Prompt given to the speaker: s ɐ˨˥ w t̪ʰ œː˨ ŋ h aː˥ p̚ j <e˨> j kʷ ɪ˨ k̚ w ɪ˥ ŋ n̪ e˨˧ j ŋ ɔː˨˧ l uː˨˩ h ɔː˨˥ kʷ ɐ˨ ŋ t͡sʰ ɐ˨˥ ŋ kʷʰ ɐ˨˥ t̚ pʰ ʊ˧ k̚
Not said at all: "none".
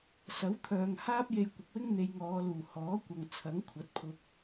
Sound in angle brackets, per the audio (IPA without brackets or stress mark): e˧